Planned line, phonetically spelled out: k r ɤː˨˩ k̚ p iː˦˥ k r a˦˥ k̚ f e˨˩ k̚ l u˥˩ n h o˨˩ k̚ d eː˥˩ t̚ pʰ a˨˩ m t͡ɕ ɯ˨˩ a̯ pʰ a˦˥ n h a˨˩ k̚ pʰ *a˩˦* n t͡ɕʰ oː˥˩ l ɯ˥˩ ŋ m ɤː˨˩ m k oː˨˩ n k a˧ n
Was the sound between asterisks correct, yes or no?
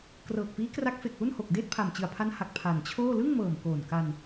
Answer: no